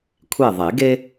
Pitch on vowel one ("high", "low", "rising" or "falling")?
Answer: falling